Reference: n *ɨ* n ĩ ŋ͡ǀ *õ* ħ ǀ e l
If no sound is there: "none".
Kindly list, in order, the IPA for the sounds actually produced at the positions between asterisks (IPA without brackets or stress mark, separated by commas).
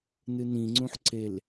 ɨ, ũ